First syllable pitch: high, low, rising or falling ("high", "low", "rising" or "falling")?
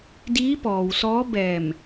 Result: rising